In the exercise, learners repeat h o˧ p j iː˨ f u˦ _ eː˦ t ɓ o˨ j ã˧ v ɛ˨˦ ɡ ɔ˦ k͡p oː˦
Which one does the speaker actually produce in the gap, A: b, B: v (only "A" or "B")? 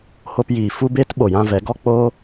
A